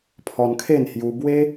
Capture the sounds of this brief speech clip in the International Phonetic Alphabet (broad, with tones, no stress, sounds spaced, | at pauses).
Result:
pʰ ɔ˧ n kʰ e˥˧ n h j u˧ b w e˦